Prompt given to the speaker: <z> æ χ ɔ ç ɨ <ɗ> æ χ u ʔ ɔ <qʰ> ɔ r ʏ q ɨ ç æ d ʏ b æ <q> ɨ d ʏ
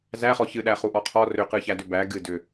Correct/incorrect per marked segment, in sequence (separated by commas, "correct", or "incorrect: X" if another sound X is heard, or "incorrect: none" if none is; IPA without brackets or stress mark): correct, correct, correct, incorrect: ɡ